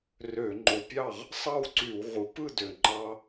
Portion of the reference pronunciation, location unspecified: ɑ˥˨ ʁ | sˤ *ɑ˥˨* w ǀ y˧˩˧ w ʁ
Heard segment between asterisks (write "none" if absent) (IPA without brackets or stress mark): ɑ˥˨